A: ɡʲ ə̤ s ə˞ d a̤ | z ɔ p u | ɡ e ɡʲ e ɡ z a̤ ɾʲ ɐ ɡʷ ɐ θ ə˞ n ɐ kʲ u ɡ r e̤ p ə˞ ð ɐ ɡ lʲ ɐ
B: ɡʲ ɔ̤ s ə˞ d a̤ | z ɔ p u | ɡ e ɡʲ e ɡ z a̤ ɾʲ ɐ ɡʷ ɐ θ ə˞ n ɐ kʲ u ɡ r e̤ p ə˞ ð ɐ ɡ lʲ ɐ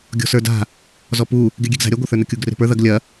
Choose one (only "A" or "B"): B